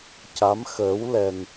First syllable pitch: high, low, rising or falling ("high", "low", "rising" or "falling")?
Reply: rising